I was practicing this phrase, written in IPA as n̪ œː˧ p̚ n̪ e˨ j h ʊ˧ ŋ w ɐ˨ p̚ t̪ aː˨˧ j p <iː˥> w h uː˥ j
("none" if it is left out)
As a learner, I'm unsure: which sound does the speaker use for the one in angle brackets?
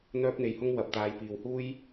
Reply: iː˨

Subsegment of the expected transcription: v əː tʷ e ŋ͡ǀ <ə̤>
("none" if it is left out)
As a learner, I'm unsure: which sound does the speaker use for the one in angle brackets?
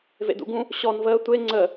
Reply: ə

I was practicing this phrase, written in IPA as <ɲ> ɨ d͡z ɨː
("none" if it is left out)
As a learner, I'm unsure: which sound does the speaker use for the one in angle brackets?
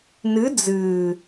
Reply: n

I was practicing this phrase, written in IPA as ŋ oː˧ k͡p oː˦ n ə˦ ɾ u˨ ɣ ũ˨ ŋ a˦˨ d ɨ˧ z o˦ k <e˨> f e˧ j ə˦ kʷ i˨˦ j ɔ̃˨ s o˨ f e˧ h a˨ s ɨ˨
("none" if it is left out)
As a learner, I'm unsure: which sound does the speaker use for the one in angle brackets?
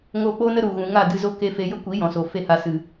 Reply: e˦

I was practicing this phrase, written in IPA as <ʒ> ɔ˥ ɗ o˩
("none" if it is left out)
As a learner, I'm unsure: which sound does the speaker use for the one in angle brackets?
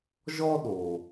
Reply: ʒ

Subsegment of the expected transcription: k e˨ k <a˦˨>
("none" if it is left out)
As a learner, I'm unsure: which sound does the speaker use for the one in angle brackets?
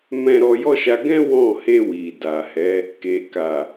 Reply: a˨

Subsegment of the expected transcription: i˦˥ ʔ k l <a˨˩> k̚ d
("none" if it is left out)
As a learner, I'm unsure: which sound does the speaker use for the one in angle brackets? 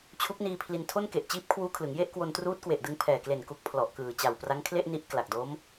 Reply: a˨˩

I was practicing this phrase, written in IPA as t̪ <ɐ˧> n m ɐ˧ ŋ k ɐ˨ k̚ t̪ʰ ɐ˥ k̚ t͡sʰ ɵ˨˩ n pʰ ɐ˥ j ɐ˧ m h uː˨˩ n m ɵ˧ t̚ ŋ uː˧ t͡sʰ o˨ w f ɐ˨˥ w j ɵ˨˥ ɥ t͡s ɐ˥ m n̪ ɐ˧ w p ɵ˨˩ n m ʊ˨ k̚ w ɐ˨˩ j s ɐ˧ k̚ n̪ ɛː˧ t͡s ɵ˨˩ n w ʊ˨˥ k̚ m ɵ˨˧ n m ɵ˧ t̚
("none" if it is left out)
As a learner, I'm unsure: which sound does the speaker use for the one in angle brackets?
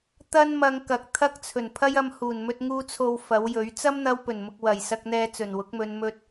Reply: ɐ˥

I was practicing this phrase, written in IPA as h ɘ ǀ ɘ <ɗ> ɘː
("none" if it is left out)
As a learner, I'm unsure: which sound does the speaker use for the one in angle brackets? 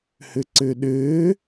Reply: ɗ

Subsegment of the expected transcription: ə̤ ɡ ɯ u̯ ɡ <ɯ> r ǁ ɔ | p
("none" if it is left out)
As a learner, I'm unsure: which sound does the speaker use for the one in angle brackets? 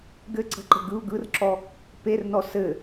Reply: ɯ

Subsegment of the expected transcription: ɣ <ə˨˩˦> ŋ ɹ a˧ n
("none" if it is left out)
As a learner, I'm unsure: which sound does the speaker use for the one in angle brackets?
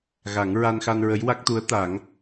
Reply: a˨˩˦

